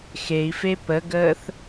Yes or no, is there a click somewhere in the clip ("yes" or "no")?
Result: no